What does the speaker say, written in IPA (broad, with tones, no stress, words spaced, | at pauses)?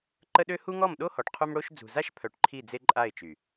ǃə˦ɗø˦ hu˦ŋɔ˦˨mɗo˦ hɔ˨ʈqʰu˦m ɽo˦ʃ d͡zṳ˨za˦ʃpʰœ˨ʈ ǃʰi˦˨d͡ze˦ ǃʼa˦˨ɪ̯t͡ʃy˨